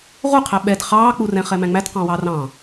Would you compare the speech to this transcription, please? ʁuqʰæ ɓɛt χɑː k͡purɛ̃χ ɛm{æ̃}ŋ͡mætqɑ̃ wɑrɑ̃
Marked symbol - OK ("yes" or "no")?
yes